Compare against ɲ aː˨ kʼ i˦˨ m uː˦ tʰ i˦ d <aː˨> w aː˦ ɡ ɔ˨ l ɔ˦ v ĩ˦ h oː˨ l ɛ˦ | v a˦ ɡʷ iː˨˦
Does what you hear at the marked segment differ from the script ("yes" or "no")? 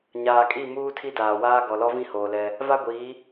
no